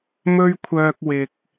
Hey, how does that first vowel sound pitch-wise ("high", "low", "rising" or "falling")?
high